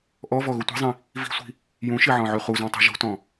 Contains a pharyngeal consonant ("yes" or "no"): yes